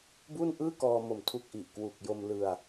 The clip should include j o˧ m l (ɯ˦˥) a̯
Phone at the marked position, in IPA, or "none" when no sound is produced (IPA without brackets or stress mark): ɯ˧